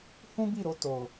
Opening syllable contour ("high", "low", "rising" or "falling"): high